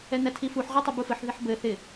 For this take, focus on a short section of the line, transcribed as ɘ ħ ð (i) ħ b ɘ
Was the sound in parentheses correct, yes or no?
no